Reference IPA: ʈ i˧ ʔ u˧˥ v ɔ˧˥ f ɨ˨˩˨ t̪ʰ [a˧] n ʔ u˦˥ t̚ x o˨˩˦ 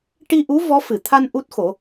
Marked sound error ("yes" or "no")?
no